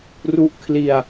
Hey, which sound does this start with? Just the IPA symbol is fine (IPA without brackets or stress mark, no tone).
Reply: r